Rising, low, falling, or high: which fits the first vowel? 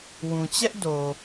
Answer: low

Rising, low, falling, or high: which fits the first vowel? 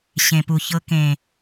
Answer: low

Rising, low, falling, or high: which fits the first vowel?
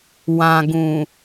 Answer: low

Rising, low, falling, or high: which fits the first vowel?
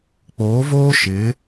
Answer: rising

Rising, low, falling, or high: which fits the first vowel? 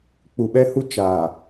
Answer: low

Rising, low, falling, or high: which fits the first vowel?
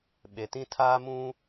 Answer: low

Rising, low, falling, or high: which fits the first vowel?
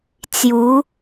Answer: rising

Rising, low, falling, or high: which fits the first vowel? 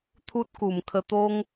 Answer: high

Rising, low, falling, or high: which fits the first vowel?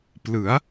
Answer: rising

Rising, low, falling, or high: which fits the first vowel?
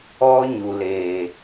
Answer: high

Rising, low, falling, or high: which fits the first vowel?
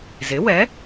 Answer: rising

